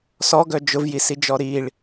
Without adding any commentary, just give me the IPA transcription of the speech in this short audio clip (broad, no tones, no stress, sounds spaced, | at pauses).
s ɔ ɡ œ d͡ʒ ʊ v j i s i d͡ʒ ɔ ɾ i ɭ